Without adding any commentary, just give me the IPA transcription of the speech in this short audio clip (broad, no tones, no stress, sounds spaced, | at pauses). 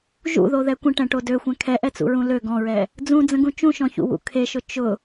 ʒ ṵ ð o ð ɛ kʷ ə̃ ʈ ɛ̃ ʈ o d ø xʷ ɛ̃ kʰ ɛ ʔ ɛ t͡s ṵ ɹ ũ l ø ɡ ɔ̃ ɹ ɛ | d͡z ũ d͡z ə̃ ɡ ũ t͡ʃ ũ ʃ ɔ̃ ç ṵ w ṵ kʰ e ʃ ʊ t͡ʃ ʊ